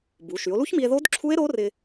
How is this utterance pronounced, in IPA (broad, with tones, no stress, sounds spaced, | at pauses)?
b u˩˧ ʃ y˩˧ o̯ l u˦˥ ç m i˧ e̯ ð o˦˥ d ǁʰ u˦˥ e̯ ɾ o˦˥ r ɪ˧